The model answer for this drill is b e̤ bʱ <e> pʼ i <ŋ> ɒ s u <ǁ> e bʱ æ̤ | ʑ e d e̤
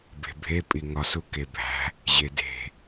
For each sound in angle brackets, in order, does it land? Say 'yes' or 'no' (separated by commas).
yes, yes, no